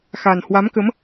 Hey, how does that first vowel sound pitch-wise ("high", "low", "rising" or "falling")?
low